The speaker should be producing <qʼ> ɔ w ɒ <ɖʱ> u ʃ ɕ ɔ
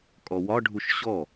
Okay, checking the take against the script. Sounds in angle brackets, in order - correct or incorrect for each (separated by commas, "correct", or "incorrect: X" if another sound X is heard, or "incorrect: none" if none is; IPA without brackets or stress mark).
incorrect: kʼ, correct